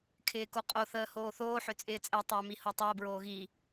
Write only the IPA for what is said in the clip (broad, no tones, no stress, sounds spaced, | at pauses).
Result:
kʰ ɪː k o qʼ o θ əː h oː θ oː ħ ʏ t͡sʼ ɪː t͡sʼ ɛ tˤ ʏː m i h o tˤ əː b ɹ oː ɣ i